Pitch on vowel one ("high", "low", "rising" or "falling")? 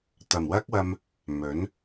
low